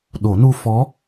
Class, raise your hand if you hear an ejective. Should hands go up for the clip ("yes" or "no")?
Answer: no